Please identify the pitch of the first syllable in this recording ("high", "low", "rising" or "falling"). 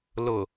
low